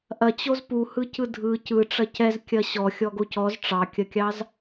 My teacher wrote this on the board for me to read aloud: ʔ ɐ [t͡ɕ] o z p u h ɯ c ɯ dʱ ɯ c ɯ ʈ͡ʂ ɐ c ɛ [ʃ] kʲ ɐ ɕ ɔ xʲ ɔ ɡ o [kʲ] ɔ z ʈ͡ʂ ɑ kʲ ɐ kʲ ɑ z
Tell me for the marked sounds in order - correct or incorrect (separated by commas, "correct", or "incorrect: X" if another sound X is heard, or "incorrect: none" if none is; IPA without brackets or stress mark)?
correct, incorrect: z, incorrect: c